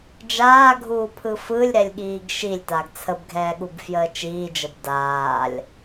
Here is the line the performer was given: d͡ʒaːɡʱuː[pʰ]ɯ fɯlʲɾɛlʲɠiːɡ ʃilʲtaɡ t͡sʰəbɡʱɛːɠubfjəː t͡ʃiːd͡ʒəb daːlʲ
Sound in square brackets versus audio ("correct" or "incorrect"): correct